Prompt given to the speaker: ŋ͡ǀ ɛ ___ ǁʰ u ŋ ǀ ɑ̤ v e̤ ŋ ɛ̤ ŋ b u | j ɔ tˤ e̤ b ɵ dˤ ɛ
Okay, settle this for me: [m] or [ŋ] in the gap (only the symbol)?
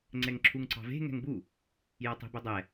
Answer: ŋ